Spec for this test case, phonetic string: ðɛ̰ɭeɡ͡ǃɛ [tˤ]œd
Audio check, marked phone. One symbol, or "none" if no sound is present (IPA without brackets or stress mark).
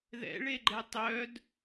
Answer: tˤ